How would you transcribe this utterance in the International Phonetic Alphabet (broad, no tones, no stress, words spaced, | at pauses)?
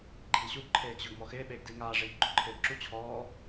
ɡ͡ǃiːɕuɡ ǃʰeːɡʑʊɡ mɔxɪː ɓeːɡdiːŋaː ʐiːɡɡ͡ǃoǃʰɪːɡǁu t͡ɕʰɔː